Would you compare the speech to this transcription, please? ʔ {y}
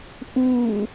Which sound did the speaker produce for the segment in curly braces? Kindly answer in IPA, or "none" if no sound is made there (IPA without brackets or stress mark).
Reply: u